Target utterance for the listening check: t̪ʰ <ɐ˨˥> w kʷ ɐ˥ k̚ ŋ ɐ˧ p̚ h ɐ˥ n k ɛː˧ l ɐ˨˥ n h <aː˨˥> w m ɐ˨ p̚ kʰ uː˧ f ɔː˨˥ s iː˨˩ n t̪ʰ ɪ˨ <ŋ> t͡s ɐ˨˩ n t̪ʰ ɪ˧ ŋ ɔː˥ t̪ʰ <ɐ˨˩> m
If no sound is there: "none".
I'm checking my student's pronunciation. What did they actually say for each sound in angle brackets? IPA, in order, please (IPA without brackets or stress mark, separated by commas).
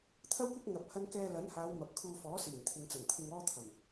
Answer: ɐ˥, aː˨˧, ŋ, ɐ˨˩